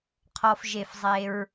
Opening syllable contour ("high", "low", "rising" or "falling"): low